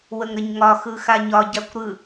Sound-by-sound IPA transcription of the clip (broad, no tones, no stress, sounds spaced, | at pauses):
w ə ŋ ɾ ə ɲ ŋ ɒ x ɯ x a ɲ ɒ ɟ a kʷ ɾ ɯ